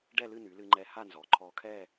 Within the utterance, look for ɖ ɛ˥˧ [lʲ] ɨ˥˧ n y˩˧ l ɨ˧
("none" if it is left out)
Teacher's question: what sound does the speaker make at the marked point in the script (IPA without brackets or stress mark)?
l